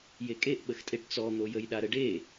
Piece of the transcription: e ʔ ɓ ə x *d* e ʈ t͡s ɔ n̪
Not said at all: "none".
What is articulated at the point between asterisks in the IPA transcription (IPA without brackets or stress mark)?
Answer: tʼ